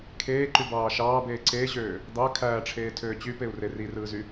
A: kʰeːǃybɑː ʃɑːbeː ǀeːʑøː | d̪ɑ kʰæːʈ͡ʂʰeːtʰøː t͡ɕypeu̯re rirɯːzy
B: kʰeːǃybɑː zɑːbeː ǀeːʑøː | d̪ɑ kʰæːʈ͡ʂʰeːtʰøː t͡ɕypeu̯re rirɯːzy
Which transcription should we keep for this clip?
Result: A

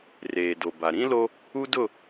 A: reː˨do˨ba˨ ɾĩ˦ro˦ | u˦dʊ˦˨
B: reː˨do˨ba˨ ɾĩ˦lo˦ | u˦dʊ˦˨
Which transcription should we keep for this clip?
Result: B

